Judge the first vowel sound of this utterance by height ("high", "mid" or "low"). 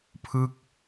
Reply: high